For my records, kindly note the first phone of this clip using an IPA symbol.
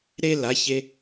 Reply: ɾ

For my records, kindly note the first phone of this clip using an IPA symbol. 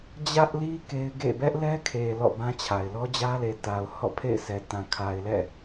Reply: d͡ʑ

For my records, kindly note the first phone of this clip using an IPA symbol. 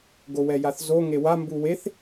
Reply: ɡ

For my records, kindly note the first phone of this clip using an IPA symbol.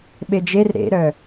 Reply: ɓ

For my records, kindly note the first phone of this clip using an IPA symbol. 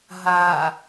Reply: ɦ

